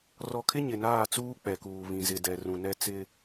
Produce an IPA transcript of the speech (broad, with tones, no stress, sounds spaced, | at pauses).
r ɔ˨ kʰ ɪ˦ ɲ ɪ˨ n aː˦˨ t͡s uː˦ k͡p ɛ˨ k uː˨ β ĩ˨ z ɪ˨ d ɛ˨ r ũ˨ n ɛ˦ t͡s ɪ˦